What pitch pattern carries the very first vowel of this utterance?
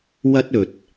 high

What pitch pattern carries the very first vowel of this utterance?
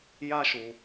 high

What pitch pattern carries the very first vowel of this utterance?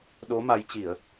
rising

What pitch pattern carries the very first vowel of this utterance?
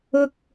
low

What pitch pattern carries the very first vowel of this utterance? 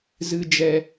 low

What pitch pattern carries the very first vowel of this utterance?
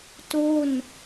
falling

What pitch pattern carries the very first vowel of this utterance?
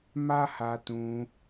high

